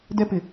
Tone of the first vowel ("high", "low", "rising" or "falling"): high